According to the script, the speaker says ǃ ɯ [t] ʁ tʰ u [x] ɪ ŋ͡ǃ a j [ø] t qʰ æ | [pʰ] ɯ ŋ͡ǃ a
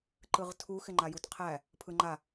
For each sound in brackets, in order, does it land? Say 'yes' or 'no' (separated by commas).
no, yes, no, yes